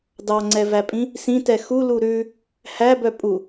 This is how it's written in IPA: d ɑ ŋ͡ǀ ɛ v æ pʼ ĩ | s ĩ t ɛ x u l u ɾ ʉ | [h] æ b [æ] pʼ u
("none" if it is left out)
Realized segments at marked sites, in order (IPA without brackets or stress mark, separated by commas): h, œ